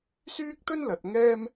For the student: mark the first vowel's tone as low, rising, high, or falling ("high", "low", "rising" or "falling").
high